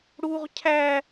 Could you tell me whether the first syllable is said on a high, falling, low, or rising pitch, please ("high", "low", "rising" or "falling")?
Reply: high